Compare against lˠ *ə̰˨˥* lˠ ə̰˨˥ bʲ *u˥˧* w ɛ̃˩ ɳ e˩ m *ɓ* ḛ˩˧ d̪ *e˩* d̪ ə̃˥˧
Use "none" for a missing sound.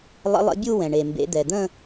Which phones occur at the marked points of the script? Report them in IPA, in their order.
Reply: ə̰˨˥, u˥˧, b, ɛ˩

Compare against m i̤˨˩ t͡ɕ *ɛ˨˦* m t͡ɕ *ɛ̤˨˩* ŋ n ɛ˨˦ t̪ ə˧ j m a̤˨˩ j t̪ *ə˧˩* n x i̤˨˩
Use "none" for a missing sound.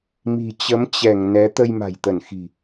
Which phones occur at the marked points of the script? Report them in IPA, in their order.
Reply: ə˨˦, ɛ˧˩, ə˧˩

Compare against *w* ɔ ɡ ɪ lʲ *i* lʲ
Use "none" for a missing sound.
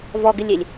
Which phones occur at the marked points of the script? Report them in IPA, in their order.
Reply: v, e

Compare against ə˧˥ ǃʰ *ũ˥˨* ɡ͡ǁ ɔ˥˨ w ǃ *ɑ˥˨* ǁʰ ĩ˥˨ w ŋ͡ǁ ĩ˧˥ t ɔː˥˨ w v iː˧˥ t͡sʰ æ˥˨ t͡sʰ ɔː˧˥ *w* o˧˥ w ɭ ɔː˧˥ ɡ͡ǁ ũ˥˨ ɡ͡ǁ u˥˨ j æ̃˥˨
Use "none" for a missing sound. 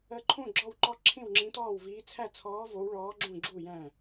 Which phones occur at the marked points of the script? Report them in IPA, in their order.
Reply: ũ˥˨, ɔ˥˨, v

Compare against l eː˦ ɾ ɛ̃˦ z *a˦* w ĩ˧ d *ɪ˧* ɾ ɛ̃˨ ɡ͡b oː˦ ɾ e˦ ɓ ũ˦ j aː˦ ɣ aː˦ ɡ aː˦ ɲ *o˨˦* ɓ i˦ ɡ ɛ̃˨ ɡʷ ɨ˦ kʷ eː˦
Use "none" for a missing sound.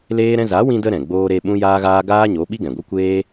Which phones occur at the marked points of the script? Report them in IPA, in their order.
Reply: a˨˦, ə˧, o˨˦

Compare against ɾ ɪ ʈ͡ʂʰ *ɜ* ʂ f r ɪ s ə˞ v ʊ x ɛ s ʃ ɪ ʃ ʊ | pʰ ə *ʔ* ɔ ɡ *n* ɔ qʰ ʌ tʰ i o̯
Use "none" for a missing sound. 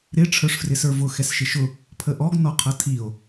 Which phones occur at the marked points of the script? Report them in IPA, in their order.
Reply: ə˞, ʔ, n

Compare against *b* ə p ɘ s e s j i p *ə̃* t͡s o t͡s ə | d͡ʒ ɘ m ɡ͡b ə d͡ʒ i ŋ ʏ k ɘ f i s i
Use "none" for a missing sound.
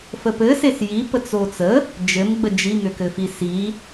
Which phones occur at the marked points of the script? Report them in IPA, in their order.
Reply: f, ə

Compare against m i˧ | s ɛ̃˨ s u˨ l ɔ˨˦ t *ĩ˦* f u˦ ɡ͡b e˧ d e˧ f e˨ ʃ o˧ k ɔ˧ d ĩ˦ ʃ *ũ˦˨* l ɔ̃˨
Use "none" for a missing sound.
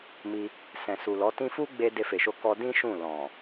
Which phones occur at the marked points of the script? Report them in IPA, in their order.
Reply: ĩ˦, ũ˦˨

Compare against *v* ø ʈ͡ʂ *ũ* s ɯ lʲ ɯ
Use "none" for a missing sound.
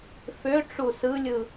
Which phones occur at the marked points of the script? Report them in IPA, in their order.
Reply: f, u

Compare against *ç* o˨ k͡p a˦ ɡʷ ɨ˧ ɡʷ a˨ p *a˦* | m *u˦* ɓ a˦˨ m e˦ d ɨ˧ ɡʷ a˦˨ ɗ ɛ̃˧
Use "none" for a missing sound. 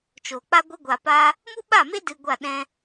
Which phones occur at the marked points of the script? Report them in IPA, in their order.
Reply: t͡ʃ, a˧, u˦

